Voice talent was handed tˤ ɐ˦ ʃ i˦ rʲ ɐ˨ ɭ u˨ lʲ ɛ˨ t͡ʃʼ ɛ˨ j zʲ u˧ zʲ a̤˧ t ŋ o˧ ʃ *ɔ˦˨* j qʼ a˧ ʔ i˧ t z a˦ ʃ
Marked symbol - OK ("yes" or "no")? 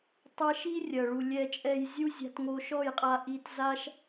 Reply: yes